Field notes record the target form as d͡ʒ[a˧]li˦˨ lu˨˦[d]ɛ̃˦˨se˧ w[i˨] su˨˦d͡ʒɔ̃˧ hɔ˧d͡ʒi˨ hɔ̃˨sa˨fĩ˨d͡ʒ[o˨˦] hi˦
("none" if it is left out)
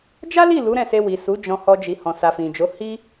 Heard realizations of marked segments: a˦, ɾ, i˨, o˨˦

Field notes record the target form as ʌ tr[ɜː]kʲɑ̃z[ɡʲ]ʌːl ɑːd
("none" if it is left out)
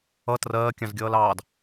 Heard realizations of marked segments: ɜː, ɡʲ

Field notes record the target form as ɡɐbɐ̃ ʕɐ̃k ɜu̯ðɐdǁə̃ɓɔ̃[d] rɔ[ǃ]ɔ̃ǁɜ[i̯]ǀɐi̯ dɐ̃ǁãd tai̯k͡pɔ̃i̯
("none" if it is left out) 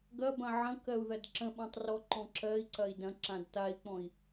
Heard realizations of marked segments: tˤ, ǃ, i̯

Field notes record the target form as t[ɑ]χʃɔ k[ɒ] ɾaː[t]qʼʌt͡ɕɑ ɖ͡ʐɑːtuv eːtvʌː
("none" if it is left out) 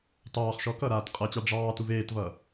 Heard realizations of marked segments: ɑː, ʌ, t

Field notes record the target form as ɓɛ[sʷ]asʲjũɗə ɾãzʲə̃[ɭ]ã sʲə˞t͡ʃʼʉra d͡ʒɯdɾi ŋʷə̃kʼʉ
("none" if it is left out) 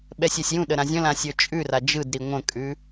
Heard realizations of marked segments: sʲ, l

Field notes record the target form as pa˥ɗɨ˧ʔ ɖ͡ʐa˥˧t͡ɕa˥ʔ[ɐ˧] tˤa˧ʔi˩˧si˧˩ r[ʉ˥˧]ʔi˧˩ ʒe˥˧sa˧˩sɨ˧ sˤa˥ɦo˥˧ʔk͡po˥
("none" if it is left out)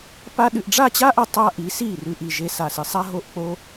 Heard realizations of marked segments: ɐ˧, ʉ˥˧

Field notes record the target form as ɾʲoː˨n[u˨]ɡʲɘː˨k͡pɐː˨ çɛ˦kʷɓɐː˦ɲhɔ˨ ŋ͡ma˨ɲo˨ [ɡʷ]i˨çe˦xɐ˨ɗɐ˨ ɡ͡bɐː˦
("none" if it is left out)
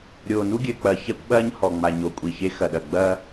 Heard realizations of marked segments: u˦, kʷʼ

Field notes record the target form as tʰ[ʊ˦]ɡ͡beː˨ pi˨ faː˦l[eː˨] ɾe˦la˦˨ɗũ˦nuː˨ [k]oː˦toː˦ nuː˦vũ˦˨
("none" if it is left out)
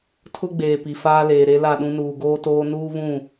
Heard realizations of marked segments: ʊ˦, eː˨, ɡ

